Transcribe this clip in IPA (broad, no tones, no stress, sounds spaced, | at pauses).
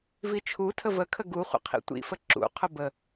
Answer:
v i t͡ʃʰ u tʰ ə v ə kʰ ə ɡ u χʷ ə̰ qʰ ḭ tʷ ḭ f ə ǁ ṵ qʰ ʊ b ə